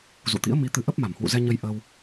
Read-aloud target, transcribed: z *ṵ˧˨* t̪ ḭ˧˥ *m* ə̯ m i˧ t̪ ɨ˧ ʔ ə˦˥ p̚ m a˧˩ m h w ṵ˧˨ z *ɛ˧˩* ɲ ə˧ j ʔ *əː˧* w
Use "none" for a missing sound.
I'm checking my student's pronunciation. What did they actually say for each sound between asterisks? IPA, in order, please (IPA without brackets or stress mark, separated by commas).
ṵ˧˨, none, ɛ˧, əː˧